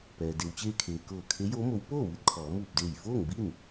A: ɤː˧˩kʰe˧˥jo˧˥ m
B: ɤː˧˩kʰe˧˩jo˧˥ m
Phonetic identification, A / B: A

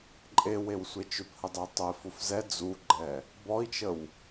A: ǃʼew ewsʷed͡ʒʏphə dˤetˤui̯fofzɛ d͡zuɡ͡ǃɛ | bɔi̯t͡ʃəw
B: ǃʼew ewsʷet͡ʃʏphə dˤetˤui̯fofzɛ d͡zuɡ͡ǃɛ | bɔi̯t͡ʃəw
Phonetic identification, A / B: B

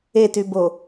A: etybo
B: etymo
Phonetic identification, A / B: A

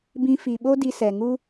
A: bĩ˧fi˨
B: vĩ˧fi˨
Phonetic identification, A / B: A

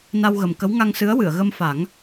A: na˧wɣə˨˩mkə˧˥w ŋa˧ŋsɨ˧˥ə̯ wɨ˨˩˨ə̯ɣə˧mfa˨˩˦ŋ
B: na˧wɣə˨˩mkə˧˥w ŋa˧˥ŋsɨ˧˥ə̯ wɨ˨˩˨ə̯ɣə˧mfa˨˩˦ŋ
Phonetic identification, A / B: A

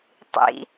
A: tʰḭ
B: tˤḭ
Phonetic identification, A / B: B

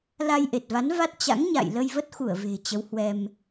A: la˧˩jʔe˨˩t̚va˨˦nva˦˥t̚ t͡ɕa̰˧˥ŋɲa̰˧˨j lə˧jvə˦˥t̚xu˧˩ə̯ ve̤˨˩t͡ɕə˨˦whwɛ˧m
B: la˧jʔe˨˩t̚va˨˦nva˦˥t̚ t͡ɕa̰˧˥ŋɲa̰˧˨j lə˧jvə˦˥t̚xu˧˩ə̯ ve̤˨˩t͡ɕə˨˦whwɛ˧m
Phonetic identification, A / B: B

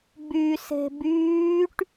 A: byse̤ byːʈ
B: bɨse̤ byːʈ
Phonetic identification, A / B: A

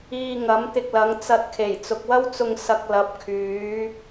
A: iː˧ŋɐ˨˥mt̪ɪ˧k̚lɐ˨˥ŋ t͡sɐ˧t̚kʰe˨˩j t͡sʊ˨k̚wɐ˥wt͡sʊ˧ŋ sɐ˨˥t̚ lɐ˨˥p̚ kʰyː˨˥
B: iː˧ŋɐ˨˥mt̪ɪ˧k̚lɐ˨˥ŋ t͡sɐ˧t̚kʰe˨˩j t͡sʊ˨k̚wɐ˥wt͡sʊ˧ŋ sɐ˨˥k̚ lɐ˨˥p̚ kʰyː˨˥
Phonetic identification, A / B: B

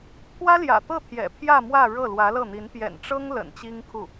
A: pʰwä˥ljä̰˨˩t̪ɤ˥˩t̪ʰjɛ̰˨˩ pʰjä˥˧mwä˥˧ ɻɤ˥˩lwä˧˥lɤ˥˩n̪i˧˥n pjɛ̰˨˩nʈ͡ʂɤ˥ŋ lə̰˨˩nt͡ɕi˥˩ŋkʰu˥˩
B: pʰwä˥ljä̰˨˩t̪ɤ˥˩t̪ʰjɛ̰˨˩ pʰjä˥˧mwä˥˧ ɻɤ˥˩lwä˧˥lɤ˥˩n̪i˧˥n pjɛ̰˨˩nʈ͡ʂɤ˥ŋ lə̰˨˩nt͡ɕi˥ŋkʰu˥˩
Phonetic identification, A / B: B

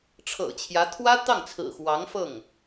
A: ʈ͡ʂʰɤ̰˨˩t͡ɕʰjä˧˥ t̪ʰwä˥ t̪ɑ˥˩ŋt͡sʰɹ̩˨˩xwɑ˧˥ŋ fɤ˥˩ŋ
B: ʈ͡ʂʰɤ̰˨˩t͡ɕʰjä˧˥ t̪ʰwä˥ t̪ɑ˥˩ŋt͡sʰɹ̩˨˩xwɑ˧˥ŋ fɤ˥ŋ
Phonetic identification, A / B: A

